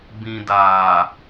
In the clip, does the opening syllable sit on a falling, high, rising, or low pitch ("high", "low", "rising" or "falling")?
low